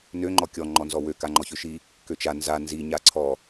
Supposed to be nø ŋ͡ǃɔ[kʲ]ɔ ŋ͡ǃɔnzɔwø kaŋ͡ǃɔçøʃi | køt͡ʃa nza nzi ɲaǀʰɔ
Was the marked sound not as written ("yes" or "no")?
no